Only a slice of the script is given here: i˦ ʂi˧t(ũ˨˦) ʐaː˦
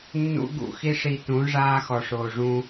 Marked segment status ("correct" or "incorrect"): correct